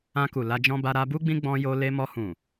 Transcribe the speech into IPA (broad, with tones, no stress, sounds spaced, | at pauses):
ã˧ k u˨ l a˧ d͡ʒ ɔ̃˦ b a˧ ɾ a˧ b u˦ ɡ͡b ĩ˦ ɡ͡b ɔ̃˧ j o˧ l e˧ m ɔ˧ h ũ˨